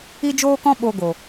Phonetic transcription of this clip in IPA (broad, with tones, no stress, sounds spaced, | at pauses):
i˦ d͡ʒ oː˦ k ɔ̃˦ ɓ o˧ ɡ o˨